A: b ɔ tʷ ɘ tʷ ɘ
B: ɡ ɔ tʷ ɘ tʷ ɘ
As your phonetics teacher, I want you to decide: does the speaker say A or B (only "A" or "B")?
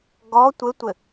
B